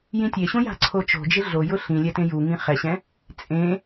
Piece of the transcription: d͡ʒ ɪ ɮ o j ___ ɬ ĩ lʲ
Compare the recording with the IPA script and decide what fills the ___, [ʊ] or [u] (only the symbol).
ʊ